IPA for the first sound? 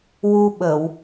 w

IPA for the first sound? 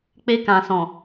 k͡p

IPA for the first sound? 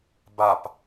b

